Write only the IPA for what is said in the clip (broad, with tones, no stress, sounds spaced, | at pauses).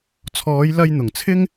t͡sʰ ɔː˨˧ j l ɐ˧ j n̪ ʊ˨˩ ŋ t͡sʰ ɪ˥ ŋ